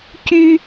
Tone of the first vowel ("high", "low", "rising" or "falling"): high